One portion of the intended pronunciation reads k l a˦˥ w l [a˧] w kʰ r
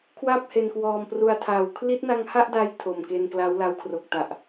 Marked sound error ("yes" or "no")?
no